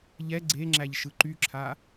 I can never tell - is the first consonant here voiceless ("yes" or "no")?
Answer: no